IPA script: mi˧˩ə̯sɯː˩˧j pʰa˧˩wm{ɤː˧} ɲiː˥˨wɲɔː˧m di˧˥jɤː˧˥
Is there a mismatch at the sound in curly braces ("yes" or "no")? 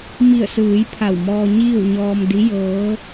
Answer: yes